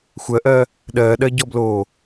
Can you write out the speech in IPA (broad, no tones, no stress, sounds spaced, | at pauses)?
xʷ ɜ ʔ ɜː | ɗ ɜː ɗ ɜ ɟ ɔ b l oː